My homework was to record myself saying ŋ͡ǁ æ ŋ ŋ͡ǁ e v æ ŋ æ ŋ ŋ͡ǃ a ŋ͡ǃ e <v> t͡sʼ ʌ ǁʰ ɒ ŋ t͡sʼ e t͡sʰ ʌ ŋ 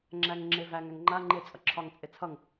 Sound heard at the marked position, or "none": none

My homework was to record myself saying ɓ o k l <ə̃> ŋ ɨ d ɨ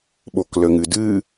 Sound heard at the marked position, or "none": ə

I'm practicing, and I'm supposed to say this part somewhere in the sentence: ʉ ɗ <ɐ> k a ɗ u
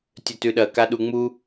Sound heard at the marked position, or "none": ɐ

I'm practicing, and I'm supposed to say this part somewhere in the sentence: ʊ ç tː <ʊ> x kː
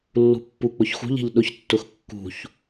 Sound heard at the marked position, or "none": ʊ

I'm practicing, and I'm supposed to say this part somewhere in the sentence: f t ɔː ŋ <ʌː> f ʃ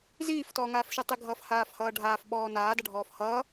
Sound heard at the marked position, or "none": aː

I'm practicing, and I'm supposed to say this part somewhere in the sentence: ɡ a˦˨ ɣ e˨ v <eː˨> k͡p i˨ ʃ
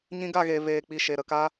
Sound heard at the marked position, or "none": eː˨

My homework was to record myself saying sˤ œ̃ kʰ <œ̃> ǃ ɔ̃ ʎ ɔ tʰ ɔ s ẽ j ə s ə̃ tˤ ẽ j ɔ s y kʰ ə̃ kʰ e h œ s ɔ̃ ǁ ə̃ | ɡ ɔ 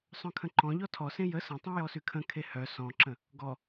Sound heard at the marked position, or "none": ə̃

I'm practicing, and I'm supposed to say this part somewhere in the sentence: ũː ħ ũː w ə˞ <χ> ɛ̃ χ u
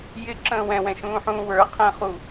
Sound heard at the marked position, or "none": qʰ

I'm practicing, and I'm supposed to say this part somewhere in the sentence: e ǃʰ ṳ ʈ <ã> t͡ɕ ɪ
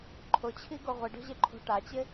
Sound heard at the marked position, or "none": a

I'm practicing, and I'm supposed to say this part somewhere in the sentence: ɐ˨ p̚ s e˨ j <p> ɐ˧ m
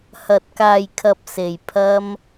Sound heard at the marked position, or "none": pʰ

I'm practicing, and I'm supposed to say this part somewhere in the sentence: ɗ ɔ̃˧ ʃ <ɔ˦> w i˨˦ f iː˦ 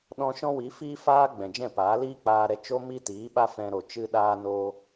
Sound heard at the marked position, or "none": ɔ̃˦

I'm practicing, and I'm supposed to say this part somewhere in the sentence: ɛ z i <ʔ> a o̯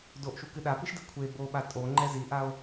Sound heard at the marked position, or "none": ʔ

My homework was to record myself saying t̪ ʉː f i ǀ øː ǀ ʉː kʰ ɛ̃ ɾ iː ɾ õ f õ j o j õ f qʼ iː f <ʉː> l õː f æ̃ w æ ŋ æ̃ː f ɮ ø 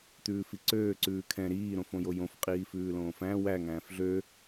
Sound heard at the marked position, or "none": ʉː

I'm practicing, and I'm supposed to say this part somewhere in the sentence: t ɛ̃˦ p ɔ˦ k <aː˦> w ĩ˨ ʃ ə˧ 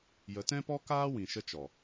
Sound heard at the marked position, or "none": aː˦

